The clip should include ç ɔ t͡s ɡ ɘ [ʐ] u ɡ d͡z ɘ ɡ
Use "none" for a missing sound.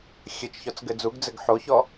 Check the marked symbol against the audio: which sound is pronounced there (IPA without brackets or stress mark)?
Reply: d͡z